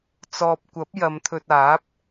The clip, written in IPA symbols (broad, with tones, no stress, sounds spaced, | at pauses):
t͡s ɔː˨ p̚ kʷ ɐ˨˥ p̚ j ɐ˨˧ m t̪ʰ ɵ˧ t̚ aː˨˥ p̚